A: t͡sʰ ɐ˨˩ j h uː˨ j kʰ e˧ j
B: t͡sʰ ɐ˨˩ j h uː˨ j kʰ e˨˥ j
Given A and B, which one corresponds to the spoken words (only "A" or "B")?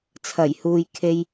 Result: A